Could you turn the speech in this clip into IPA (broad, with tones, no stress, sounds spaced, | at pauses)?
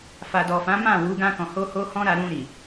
f a˨ d ɔ˨ f ã˨˦ m ã˦˨ w u˨˦ ɡ ã˧ k ɔ̃˨ h o˧ h o˧ h ɔ̃˦ ɾ a˧ ɾ ũ˧ ɾ i˨